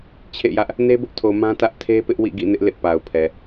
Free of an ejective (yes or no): yes